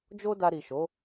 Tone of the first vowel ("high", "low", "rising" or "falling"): high